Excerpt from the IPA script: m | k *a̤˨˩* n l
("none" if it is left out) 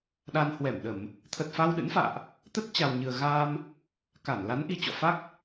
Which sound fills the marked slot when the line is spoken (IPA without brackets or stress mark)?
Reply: a˧˩